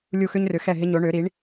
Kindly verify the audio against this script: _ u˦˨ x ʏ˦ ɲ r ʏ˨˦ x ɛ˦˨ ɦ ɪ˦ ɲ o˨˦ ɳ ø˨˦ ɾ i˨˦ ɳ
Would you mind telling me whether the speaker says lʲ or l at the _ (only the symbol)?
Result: lʲ